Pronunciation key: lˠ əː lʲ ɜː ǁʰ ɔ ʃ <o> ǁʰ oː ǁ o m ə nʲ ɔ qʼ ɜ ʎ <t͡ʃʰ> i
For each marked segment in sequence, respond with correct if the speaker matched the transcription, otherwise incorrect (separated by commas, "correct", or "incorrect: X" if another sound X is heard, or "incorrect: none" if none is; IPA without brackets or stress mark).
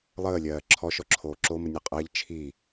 incorrect: ɔ, correct